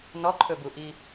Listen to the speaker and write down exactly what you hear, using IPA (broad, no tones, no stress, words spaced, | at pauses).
nɔǃʰɵbuʔi